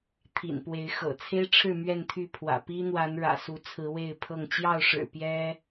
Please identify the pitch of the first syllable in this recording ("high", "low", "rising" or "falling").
low